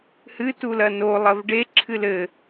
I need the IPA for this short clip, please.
h ɨ t u l ɐ n o lˠ ɐ v ɖ e ǁʰ ɨ l ɘ

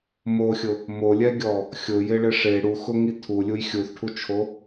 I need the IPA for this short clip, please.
m o xʲ ʊ | m o lʲ ɛ ɡʲ ɔ | xʲ ʊ j ɪ ɭ ɪ ʂ e ɽ u x ʊ ŋ i tʰ u lʲ u j xʲ u θ ʈʰ u t͡ʃʰ o

